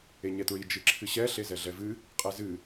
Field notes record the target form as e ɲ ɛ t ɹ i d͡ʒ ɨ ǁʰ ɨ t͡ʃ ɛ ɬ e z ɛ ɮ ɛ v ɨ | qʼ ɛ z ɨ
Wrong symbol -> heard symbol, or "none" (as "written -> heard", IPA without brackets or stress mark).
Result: t͡ʃ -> ɕ